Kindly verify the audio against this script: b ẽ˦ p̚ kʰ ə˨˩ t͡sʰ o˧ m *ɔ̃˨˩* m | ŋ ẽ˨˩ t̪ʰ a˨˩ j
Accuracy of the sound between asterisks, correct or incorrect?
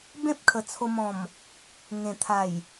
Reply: correct